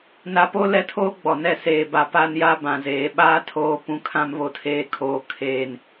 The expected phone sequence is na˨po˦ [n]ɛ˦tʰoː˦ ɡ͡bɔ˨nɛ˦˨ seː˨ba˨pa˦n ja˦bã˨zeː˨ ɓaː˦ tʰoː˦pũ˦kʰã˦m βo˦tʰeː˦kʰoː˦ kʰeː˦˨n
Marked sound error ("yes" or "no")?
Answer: yes